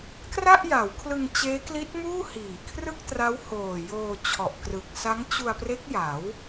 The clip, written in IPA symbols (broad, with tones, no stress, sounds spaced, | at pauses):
k r a˥˩ ʔ j a˩˦ w kʰ l ɯ˧ ŋ t͡ɕ eː˦˥ k l i˦˥ t̚ m uː˥˩ h iː˨˩ kʰ r ɯ˥˩ k̚ t r a˦˥ w h oː˨˩ j oː˧ t͡ɕʰ ɔ˨˩ ʔ k r ɯ˨˩ k̚ s a˦˥ ŋ t͡ɕ u˧ a̯ p r e˦˥ k̚ j a˩˦ w